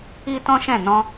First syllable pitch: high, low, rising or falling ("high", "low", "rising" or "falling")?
high